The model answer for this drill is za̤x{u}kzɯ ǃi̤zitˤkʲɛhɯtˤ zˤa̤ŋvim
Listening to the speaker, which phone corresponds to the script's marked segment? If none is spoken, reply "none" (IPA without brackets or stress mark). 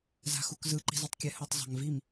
u